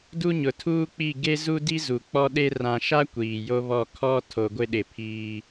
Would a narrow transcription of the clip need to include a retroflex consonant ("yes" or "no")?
no